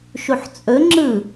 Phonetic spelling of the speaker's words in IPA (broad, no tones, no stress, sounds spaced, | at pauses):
ʃ u ħ t͡sʼ ɵ ŋ͡ǁ ɯ